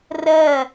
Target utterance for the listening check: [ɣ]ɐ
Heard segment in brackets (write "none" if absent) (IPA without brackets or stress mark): r